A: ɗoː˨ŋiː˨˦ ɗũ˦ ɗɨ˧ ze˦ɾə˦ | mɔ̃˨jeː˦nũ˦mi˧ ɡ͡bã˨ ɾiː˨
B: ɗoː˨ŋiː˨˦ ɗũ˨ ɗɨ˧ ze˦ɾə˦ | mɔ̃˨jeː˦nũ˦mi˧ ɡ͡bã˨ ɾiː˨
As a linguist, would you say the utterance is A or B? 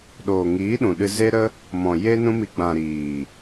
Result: B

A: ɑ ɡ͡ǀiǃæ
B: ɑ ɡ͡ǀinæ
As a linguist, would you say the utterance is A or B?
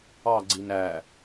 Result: B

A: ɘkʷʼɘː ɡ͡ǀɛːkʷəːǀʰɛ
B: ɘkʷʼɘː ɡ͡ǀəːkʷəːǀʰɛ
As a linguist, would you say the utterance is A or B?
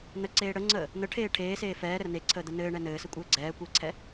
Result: A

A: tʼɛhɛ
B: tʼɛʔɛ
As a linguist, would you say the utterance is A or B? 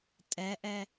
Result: B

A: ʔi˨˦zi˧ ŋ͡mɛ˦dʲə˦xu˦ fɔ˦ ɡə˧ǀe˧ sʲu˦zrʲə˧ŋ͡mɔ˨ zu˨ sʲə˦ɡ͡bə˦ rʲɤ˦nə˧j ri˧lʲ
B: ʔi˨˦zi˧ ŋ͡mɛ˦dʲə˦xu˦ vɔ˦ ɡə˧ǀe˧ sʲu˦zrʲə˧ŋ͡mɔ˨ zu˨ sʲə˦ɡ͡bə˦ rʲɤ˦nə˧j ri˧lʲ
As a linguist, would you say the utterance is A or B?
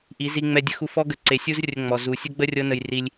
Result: A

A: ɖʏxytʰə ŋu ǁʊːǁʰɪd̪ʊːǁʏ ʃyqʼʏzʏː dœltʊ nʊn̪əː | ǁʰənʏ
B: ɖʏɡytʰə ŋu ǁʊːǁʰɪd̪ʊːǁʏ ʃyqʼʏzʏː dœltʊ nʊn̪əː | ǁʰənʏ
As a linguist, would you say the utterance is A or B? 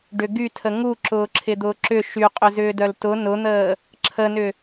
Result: B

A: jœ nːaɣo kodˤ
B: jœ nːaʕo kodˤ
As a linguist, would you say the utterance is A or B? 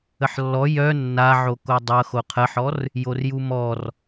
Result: B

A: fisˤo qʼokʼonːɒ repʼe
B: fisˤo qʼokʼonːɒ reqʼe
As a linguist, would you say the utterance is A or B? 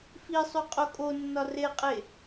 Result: B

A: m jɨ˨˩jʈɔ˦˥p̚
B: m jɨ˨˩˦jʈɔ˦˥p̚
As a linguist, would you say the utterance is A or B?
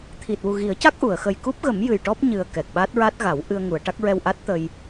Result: A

